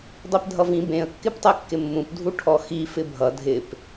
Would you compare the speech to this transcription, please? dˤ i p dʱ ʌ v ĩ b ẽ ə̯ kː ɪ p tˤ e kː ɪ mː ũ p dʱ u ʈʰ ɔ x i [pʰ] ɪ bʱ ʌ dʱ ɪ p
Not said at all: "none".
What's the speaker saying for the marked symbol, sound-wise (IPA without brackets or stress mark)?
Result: f